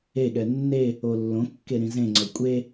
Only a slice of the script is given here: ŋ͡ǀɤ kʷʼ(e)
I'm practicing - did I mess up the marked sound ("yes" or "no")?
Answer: no